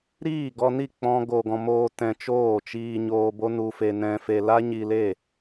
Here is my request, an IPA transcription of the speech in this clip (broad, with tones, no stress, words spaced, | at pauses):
ɾiː˦˨ɡɔ˧ni˦˨ k͡pɔ̃˦ɡo˧ɡɔ̃˧ moː˦ tɛ̃˧t͡ʃoː˦˨t͡ʃiː˧ ɲoː˧bo˦nu˧fe˧ nɛ̃˧fe˧ la˦ɲi˧le˦˨